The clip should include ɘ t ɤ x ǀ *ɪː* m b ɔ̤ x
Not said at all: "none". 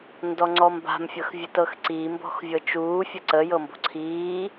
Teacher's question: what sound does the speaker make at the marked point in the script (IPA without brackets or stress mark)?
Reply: iː